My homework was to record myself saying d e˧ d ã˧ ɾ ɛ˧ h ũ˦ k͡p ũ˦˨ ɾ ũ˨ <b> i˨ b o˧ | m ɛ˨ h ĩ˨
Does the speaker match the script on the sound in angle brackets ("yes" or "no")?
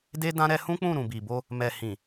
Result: yes